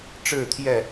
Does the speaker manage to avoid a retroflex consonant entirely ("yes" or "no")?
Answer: no